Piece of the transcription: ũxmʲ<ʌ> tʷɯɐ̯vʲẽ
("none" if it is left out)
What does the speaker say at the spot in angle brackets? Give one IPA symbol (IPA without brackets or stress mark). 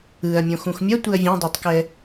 ʌ